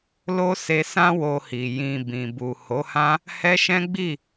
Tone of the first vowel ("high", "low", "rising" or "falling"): high